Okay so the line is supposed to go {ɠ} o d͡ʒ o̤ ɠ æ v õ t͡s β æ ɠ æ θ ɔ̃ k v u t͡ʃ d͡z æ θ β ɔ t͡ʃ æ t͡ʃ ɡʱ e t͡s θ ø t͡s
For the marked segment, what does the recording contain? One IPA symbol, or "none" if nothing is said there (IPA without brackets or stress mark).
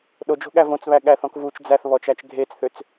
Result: ɗ